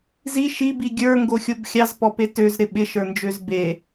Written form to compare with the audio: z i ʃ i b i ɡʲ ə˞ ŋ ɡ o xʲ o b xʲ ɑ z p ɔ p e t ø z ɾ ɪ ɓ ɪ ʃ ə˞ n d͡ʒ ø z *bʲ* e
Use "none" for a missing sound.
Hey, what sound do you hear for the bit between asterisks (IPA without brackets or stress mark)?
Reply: b